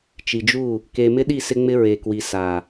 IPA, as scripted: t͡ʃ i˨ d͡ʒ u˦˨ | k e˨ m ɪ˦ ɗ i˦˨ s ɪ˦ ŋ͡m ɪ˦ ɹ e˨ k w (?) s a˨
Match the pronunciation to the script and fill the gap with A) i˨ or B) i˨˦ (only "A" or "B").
A